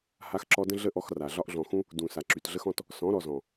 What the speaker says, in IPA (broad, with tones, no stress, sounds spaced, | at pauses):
h a˧ x ǁ ɔ˧ d ə̃˦ ɮ ə˦ ʔ ɔ˧ x r a˨ ɮ ɒ˧ ʔ ɮ ɔ̃˨ x ũ˦ | d ũ˨ s a˨ ǁ y˨ t ɮ ə˦ x ɔ̃˦ t | s ɔ̃˨˦ ɾ ɔ˨ z ɔ̃˨